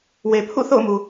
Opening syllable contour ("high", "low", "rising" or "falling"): low